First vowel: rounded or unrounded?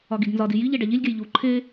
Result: rounded